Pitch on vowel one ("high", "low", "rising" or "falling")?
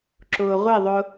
low